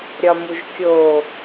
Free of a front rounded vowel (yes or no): yes